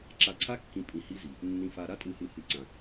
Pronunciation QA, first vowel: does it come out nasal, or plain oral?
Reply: oral